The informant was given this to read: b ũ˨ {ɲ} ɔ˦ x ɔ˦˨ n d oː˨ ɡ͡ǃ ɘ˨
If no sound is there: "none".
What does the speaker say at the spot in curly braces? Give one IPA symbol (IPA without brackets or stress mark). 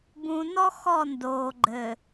n